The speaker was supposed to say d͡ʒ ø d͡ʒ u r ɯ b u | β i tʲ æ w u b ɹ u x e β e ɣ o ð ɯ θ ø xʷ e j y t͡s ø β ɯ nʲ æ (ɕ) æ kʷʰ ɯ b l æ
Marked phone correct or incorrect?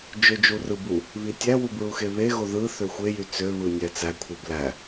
incorrect